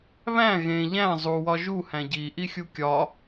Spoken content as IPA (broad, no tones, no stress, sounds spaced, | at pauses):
β æ̃ ɣ ẽ ʎ æ̃ zˤ u w ɒ ʒ u h æ̃ ɟ i ʔ i xʲ u kʲ ɒ